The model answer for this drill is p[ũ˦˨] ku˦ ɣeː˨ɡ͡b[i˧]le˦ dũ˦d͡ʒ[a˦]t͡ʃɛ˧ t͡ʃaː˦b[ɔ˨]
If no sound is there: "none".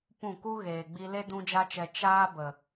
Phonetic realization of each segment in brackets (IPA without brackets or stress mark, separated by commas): ũ˦˨, i˧, a˦, ə˨